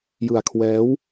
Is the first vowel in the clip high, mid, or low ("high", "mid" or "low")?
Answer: high